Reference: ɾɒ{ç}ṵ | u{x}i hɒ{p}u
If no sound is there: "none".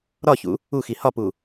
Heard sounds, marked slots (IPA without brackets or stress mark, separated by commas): ç, x, p